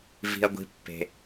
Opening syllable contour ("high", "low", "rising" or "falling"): low